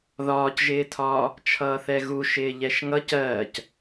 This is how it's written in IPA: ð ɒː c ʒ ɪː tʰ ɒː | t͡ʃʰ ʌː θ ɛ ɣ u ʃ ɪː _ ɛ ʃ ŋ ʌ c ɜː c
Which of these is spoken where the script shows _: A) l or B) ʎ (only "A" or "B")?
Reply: B